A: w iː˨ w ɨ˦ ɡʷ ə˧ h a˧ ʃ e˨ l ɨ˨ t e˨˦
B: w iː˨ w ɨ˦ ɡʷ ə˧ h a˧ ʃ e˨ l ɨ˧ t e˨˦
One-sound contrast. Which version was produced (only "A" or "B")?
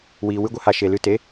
B